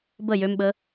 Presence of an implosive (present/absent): present